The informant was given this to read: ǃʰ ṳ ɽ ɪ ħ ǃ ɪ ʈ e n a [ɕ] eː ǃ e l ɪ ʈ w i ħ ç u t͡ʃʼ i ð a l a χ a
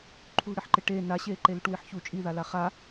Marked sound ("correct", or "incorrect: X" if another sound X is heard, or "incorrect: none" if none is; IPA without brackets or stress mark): correct